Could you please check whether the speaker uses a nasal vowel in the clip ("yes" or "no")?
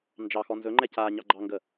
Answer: no